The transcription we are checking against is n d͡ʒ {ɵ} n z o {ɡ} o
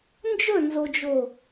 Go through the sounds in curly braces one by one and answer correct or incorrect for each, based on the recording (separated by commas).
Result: correct, incorrect